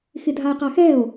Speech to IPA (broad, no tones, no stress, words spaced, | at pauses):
xɪdʱae̯qaxɛo̯